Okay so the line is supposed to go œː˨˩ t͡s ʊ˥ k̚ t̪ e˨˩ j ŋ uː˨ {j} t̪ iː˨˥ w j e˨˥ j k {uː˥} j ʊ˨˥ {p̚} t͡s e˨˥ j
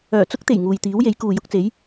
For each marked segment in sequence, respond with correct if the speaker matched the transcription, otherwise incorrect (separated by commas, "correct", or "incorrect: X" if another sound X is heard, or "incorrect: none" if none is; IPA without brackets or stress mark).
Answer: correct, incorrect: uː˨, incorrect: k̚